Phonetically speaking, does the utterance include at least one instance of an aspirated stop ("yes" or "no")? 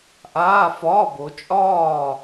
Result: no